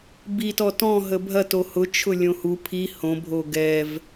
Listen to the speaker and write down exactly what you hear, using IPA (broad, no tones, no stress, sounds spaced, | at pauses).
b i t ɔ t ɔ̃ ɦ ə bʱ ɐ t o h ʊ t͡ʃʰ ʊ lʲ õ h u pʰ i h õ bʱ o ɡ ɛ v